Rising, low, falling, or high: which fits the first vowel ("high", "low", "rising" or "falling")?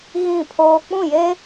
falling